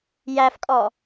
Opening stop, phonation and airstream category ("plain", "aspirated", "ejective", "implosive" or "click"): ejective